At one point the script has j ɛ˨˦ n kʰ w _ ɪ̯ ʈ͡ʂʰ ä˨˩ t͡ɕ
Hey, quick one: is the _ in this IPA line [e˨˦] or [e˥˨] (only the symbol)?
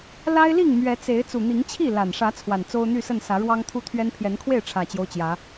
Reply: e˥˨